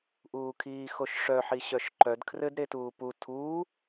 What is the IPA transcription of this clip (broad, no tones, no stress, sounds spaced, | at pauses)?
ʔ uː kʰ iː x o ʃ ʂ œ ħ i ɕ œ ʃ ǃ œ d kʰ r ɘ d ɾ e t uː p u tʰ uː